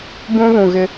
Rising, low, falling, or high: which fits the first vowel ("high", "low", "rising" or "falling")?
high